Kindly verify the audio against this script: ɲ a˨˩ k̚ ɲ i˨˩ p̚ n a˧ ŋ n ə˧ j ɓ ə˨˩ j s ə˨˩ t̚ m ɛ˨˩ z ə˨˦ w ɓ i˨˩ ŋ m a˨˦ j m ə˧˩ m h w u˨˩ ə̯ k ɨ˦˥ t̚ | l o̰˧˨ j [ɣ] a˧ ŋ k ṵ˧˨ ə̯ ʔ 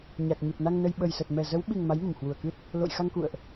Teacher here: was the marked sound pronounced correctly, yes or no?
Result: no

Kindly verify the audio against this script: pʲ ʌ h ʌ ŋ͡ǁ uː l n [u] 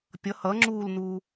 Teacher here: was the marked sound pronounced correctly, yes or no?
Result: no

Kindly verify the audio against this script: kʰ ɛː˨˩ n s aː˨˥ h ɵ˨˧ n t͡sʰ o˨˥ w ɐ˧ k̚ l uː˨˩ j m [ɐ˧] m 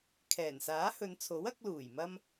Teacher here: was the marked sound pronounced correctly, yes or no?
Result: yes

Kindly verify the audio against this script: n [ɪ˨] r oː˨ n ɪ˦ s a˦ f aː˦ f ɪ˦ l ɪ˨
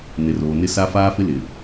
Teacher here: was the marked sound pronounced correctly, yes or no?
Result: yes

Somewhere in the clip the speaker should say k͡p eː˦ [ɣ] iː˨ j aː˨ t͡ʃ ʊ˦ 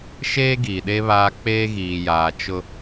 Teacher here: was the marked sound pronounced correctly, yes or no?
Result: yes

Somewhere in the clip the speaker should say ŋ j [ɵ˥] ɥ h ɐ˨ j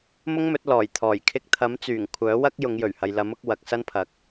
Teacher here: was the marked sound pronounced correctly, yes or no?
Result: no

